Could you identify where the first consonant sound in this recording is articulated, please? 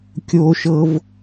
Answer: velar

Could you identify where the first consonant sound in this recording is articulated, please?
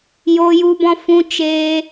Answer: palatal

